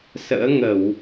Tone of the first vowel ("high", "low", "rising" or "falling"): rising